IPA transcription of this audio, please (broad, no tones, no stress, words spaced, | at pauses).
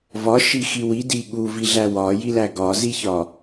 vɒʃixi widi ɠuviɮæ wɒjilæ ɡɒziçɒ